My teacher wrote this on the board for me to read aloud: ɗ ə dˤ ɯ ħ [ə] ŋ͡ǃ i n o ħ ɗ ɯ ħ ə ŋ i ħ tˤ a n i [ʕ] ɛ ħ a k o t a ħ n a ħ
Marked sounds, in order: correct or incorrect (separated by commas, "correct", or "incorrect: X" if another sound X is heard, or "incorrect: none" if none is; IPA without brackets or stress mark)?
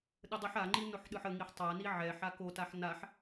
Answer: incorrect: a, correct